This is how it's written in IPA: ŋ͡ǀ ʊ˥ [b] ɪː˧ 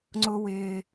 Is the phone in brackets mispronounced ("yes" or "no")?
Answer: yes